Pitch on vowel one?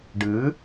rising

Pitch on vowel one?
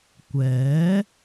rising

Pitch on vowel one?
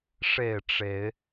falling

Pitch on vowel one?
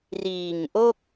low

